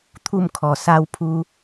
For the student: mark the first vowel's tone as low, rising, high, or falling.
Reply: falling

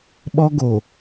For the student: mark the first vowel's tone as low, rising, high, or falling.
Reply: high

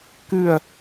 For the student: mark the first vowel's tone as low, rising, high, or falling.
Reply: falling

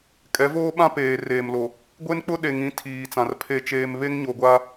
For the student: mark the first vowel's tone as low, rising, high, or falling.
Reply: rising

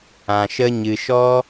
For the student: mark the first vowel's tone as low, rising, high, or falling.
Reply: low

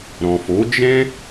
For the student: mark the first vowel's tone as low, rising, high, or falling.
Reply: low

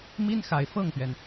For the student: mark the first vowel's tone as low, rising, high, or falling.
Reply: high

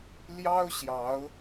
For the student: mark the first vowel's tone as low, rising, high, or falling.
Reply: high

